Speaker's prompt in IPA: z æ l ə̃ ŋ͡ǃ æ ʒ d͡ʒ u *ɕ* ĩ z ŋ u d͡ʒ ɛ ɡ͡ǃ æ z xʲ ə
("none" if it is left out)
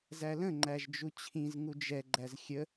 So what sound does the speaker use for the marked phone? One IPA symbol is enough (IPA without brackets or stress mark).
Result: t͡ɕʰ